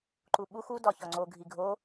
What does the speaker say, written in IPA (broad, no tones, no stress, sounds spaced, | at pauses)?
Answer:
ǃ u ɓ u x u d ɒ ç ɒ ŋ͡ǀ o ɡʱ i ɡʱ o